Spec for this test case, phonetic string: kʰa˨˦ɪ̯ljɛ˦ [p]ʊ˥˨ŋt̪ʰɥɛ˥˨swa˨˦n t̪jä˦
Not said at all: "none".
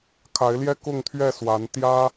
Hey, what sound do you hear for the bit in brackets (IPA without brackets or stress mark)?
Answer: k